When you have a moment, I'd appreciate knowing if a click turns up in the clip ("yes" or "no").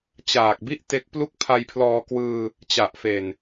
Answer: no